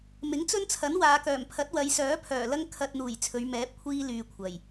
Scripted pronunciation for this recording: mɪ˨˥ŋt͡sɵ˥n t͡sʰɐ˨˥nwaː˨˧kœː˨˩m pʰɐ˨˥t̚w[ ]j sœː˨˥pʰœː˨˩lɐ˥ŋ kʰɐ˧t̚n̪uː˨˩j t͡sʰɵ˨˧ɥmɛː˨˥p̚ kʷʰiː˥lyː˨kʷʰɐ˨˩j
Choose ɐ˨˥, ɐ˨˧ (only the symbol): ɐ˨˧